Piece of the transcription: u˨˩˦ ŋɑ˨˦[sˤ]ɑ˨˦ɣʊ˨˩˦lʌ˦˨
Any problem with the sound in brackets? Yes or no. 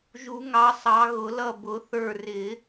no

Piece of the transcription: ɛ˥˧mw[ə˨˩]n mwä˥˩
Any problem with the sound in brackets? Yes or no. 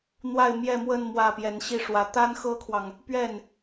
yes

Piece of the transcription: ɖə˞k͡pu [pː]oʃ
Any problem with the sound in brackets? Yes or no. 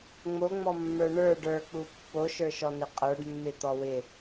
no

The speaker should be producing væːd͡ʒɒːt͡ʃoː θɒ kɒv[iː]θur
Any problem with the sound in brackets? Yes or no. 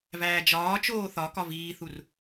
no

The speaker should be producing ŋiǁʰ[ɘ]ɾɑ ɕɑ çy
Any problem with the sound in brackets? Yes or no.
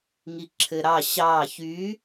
no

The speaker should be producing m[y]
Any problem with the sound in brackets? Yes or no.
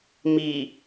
yes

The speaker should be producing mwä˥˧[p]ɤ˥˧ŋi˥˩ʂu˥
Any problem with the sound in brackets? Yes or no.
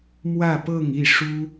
no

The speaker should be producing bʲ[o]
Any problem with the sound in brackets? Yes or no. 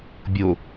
no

